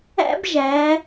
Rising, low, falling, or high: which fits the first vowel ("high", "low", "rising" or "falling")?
high